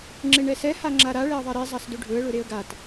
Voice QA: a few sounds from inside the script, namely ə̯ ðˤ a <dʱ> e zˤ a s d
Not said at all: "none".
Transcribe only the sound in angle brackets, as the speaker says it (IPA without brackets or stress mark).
ɾ